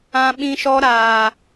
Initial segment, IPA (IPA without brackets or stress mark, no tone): ã